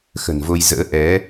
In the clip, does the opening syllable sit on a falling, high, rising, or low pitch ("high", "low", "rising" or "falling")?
low